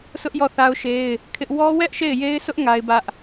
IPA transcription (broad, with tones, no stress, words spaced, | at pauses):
sʰʊ˦ʔ jɔ˦˨θa˦ʊ̯ʃe˦ɪ̯ | kʰɪ˦ʔ wɔ˦wɛ˦ʔ ʃe˦˨ɪ̯je˦ɪ̯sʊ˦ʔ ŋa˦ɪ̯bä˦ʔ